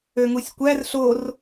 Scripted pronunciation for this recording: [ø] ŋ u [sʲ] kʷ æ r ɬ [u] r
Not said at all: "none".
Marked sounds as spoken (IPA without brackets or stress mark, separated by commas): ø, sʲ, o